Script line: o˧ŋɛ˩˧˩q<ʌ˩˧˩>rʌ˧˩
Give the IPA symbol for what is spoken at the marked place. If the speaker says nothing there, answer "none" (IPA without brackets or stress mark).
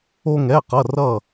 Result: ʌ˩˧˩